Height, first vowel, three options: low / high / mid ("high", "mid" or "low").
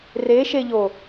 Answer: mid